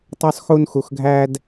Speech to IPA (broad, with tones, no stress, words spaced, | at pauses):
tˤo˥sˤxu˥nxu˧xɡʱæ˥d